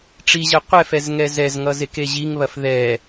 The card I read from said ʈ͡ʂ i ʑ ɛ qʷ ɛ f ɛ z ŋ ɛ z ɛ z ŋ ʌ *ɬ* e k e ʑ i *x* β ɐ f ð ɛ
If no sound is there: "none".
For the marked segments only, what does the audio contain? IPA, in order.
z, ŋ

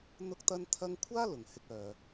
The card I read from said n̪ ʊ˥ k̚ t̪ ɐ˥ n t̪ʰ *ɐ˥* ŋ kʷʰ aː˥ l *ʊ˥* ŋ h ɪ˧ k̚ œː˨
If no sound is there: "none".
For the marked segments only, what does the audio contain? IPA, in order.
ɐ˥, ʊ˨

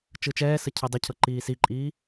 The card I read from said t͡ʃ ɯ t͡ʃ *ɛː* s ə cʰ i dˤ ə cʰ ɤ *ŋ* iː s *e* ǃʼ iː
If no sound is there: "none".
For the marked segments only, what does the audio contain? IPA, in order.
ɛː, ǃ, i

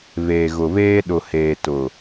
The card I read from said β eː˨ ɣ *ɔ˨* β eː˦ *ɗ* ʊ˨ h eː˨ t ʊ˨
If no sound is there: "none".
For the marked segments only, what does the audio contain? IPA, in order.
ʊ˨, ɗ

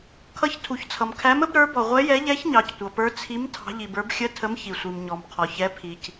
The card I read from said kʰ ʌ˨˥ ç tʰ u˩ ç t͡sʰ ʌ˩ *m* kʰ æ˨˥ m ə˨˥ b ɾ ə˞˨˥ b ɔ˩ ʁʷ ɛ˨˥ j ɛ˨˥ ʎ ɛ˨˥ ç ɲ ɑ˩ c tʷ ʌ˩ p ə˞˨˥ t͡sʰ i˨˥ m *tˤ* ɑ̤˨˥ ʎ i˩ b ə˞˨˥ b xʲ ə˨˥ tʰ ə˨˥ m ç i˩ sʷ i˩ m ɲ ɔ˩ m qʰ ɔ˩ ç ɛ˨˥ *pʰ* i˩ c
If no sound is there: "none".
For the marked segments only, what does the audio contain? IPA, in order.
m, tʰ, pʰ

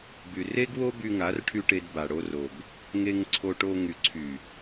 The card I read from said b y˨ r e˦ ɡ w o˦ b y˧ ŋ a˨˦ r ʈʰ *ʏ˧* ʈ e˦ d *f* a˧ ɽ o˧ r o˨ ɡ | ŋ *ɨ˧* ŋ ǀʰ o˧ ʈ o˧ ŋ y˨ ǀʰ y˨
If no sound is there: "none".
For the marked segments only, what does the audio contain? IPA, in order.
y˧, b, e˧

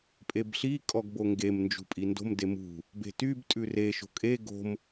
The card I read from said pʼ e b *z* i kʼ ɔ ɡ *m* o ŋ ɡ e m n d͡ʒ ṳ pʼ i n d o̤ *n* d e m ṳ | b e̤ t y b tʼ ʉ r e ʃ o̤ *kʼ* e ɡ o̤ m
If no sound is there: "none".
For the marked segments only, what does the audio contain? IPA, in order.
ɬ, b, m, kʼ

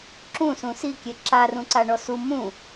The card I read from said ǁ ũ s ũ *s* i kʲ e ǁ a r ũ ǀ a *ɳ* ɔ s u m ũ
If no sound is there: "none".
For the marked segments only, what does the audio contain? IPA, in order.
s, ɳ

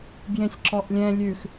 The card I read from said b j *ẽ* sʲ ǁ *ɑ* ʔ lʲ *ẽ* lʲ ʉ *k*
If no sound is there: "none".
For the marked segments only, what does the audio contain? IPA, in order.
ẽ, ɔ, ɛ̃, x

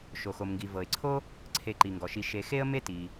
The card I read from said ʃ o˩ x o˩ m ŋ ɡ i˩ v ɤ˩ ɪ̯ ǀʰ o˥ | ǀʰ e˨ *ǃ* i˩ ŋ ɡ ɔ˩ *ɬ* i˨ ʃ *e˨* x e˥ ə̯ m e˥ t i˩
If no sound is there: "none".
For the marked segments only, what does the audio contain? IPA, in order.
ǃ, ʃ, e˨

